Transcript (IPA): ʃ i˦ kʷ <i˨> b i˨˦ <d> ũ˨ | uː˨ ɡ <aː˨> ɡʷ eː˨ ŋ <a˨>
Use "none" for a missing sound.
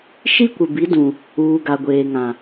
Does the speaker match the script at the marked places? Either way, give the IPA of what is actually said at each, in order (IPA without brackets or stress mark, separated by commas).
ɪ˨, d, a˨, ã˨